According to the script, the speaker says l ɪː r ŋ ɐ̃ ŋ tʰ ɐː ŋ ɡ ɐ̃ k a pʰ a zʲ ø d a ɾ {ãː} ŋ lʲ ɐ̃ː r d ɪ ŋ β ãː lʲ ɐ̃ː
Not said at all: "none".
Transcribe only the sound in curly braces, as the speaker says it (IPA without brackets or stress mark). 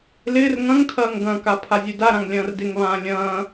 ã